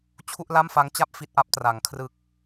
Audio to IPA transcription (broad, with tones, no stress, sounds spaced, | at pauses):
t͡ɕʰ u˥˩ ʔ l a˥˩ m f a˦˥ ŋ t͡ɕ a˥˩ p̚ f i˥˩ t̚ ʔ a˦˥ p̚ t r a˩˦ ŋ kʰ r ɯ˨˩ k̚